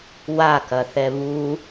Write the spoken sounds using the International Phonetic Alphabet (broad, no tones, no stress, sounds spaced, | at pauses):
w a k ɐ θ ɛ β u